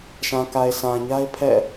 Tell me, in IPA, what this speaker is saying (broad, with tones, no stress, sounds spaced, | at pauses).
ʃ ã˨ k a˨ ɪ̯ s ã˨ ɲ a˦ ɪ̯ pʰ ɛ̰˦˨